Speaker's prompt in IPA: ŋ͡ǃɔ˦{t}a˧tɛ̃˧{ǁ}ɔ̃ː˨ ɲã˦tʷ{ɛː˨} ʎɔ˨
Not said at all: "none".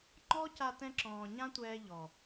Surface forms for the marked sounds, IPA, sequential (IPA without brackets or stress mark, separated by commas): c, ǁ, ɛː˧